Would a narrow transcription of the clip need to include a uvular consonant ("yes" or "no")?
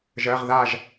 yes